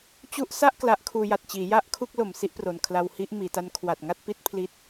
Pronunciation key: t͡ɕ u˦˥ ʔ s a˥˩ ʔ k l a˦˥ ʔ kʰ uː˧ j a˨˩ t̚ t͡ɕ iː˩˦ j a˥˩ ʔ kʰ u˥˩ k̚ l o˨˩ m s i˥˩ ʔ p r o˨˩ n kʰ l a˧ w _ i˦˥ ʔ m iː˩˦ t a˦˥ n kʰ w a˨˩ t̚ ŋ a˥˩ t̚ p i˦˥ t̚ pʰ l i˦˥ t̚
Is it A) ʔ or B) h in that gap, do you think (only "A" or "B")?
B